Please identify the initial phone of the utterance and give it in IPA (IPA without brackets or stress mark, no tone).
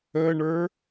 ə